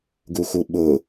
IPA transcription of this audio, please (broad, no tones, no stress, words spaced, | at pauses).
ɡuxuɓʊ